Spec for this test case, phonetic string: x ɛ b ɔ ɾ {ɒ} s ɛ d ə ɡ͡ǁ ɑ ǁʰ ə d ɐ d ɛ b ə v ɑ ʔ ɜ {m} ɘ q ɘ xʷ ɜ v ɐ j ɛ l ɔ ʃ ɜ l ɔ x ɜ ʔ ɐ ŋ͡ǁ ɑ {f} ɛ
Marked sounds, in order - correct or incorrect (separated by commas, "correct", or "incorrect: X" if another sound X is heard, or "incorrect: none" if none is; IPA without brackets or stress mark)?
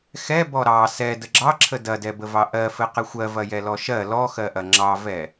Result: incorrect: ɑ, incorrect: f, incorrect: v